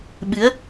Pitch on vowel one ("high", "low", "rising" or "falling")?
rising